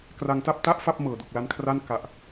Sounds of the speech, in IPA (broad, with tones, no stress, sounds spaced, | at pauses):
k r a˧ ŋ t a˥˩ p̚ t a˥˩ ʔ f a˥˩ p̚ m ɤː˨˩ d u˨˩ k̚ l a˦˥ n kʰ r a˥˩ n k a˨˩ ʔ